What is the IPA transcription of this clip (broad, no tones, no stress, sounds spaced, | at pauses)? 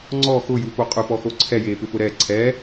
ŋ͡ǀ ɔ x ʊ j u p o qʼ ʊ p ɔ x o ǀʰ ɛ j eː p ɪ p ʊ ɾ ɛ ǀʰ ɛː